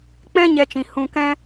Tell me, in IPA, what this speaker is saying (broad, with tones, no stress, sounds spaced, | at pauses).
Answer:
k͡p ɛ̃˦ ɲ ɛ˧ t͡ʃ ĩ˨ h ũ˧ k ɛ̃˦